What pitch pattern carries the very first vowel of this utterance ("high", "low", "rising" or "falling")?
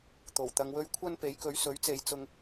low